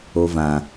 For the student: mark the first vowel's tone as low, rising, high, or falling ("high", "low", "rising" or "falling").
high